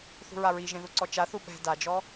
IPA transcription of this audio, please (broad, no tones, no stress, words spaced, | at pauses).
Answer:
θṳɹaɹiʒẽ ðuǀɔt͡ʃaθu ɓɛ̤ dad͡ʒɔ